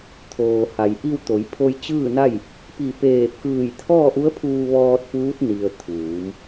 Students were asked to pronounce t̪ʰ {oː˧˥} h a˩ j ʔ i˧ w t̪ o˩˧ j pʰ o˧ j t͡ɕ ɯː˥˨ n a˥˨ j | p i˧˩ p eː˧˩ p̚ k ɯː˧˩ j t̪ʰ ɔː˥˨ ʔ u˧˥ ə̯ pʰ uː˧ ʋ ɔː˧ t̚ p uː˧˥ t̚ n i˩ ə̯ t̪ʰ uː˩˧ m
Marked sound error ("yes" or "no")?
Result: yes